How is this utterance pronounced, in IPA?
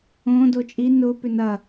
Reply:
õ d o t͡ʃʼ i n ʊ p ʏ n ɐ

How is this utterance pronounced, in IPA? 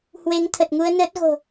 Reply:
h w e˨˦ ŋ t̪ʰ ə˨˩ t̚ ŋ u˧ ə̯ n əː˦˥ t̚ ɣ o̤˨˩

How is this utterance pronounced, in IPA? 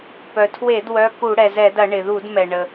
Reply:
p œ˩ tʰ w e˧˩˧ d w œ˩˧˩ k u˧˩˧ ɽ ɛ˩ z ɛ˧˩˧ d ɐ˧˩˧ ɳ ɪ˩ ð u˧˩˧ d m ɛ˩ ɳ ə˩

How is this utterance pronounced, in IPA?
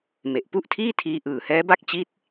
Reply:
m e˨˩ ʔ p u˥˩ ʔ tʰ iː˥˩ tʰ iː˧ ʔ ɯː˨˩ h ɛː˦˥ b a˥˩ k̚ t͡ɕ i˦˥ t̚

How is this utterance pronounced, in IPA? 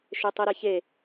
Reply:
ʃ e tˤ i ɾ e ç e

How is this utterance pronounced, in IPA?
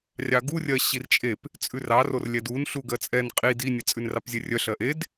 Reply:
rʲ ɑ ɡ u rʲ ɜ ɕ i r t͡ʃʼ e p | t͡sʼ ʉ r ɑ r o r lʲ ɛ d u n ɬ u ɡ ɜ t͡sʼ ɛ n qʼ i d i nʲ ɛ t͡sʼ ʉ n r ɑ p zʲ ɛ rʲ œ ɬ ɜ ʔ e d

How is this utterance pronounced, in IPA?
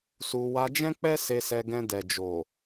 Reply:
s u˧ w a˧ d͡ʒ ɛ̃˦ k͡p ɛ˦ s e˧ s ɛ˧ ɡ ɛ̃˧ d ɛ˨ d͡ʒ o˨

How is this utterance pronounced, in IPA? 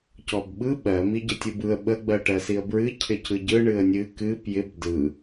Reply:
c ɔ b ɓ ɯ ɓ ɜ m i ɟ ə tʲ ɯ b ɯ ə̯ ɓ ə ɡ͡b ɜ ʈ ɜ s i ə̯ b ɹ ɨ cʰ ɪ c ɯ ɟ ɯ ɳ ɨ ə̯ nʲ ɨ k ɨ p j ɪ b d ɯ

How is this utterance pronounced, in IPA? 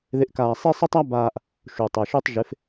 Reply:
ð ɪ˧ ʔ k aː˧ sˤ e˥ sˤ ɪ˥ tˤ a˥ b aː˧ ʔ | ʃ u˩ tˤ ɛ˩ ʃ u˧ tˤ ʒ ɪ˩˥ f

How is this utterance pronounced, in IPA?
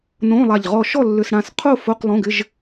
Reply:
n õ˧˥˧ lˠ a˧˩ ʎ ʁ ɔ˧˩ ʃ ɔ˥˨ lː ʏ˧˥˧ s ɽ ã˥˨ s qʰ o˥˨ f o˧˥˧ q lˠ õ˧˥˧ ɡ ɪ˧˥˧ ʒ

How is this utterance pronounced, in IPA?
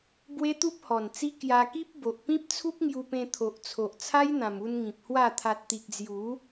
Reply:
b w e˦ t̪ u˦ p̚ h ɔ˨˩ n t͡s i˦ k j a˧ k i˦ p̚ b o˨ ʔ p ĩ˦ p̚ t͡sʰ u˦ p̚ ŋ j u˧ p ẽ˧ t̪ʰ o˨ ʔ t͡sʰ o˨ ʔ t͡sʰ a˦ j n̪ ã˨˩ m u˧ n ŋ ĩ˨ p̚ h w a˥˧ t̪ʰ a˨ t̚ t̪ i˨ k̚ d͡z j u˨˦

